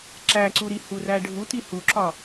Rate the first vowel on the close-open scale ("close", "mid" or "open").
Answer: open